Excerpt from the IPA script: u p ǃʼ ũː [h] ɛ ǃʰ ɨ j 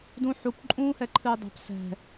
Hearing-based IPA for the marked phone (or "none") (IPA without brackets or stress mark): h